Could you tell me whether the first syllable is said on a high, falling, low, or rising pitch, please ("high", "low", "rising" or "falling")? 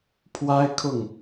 high